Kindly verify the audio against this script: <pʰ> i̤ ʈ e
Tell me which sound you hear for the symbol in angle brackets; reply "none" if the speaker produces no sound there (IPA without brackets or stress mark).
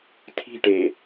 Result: tʰ